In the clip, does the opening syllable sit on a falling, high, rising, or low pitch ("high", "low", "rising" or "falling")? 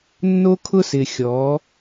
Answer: high